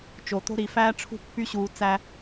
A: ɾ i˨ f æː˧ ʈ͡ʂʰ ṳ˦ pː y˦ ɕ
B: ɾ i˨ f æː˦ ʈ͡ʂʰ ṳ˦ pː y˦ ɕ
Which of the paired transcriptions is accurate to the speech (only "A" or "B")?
B